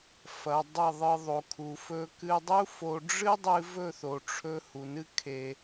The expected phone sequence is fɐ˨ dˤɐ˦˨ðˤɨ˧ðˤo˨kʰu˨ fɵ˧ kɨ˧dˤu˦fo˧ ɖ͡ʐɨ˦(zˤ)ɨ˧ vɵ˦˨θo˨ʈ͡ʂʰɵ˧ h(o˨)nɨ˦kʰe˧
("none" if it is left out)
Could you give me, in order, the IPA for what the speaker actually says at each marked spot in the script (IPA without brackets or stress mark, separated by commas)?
dˤ, u˨